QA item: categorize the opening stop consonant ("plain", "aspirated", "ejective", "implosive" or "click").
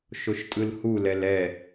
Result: ejective